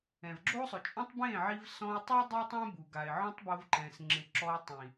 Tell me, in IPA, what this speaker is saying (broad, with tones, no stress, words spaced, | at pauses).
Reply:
ɛ̃˨vɡ͡ǁo˦sˤʊ˨t͡ʃʼɔ̃˦tˤ bẽ˦˨ʕi˧v sɔ̃˧ʊ̯tˤu˦ dˤi˦tˤɛ̃˦bu˨ ɡa˨ɪ̯ʕɔ̃˦tˤbo˧v ǃɛ̃˨s ŋ͡ǁɪ˨ǁɔ˧ɪ̯tˤĩ˨